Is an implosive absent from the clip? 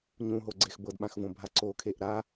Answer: no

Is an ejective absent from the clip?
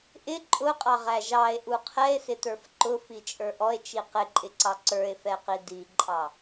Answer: no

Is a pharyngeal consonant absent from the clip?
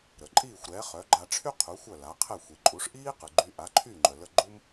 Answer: yes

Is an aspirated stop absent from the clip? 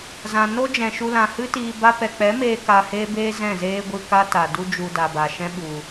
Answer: yes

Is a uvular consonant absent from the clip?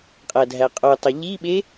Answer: no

